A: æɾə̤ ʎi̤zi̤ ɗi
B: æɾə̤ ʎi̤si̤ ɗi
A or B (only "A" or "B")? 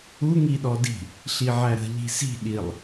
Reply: B